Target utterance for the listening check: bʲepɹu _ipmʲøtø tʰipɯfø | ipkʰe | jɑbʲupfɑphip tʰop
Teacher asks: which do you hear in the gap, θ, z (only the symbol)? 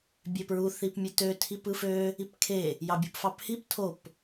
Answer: θ